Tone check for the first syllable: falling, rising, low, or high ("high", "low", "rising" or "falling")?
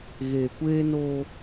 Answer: low